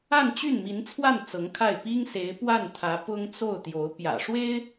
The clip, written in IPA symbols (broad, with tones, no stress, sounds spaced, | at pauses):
a˥˧ n t͡ɕ y˥˩ n m i˧˥ n t͡sʰ w a˥˩ n t͡s ɤ˧˥ ŋ kʰ a˥˩ ɪ̯ p i˥ ŋ s e˧˥ ɪ̯ p w a˥˩ n t̪ʰ ä˧˥ p ʊ˥ ŋ t͡s o˥˩ ʊ̯ t̪ j o˧˥ ʊ̯ p j ä̰˨˩ ʂ w e˥ ɪ̯